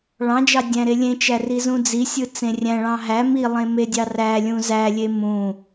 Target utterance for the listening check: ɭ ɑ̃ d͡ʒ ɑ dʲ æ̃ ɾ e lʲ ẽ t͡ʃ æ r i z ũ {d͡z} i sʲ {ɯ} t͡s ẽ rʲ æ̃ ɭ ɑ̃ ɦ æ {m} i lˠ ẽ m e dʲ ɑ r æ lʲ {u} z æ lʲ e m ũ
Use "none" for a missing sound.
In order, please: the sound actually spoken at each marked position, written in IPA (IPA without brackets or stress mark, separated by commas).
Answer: d͡z, ɯ, m, ũ